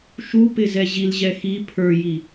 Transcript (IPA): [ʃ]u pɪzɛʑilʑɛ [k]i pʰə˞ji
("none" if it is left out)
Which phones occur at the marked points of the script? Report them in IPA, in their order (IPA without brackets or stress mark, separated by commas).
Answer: ʃ, x